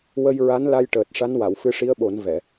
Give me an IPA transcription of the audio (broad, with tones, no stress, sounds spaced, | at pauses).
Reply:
w ə˧ j ɹ a˧˥ n l a˧ j ʈ əː˨˩ t̚ ʂ a˧˥ n w a˨˩˨ w f ɨ˧ ʂ i˧˥ ə̯ ɓ o˨˩˦ n v ɛ˨˩˨